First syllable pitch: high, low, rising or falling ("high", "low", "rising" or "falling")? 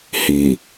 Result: low